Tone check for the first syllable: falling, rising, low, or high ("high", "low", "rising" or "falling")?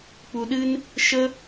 low